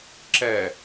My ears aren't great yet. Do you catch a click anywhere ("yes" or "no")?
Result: yes